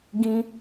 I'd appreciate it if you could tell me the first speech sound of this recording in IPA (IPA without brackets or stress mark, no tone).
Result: ɡ